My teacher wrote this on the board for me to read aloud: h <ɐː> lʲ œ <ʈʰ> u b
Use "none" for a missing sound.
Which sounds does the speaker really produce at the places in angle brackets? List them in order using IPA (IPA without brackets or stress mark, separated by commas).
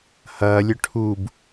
ɐː, ʈʰ